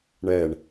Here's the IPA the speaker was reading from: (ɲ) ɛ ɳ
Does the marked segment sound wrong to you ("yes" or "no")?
yes